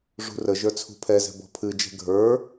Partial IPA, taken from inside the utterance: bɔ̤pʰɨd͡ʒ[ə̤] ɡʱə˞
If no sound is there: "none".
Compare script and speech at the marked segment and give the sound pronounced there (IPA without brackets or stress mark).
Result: ɛ̤